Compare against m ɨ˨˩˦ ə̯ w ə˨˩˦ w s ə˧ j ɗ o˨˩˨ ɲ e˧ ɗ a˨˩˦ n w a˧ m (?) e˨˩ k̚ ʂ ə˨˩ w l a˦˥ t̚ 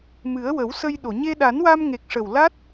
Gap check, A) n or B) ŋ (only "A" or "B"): B